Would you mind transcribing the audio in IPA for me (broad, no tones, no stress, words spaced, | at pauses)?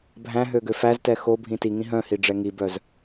bʱæ̃ɦø ɡøfæztɛ xo bʱĩtiŋĩ ɦœ̃hi ɖ͡ʐɛŋibœz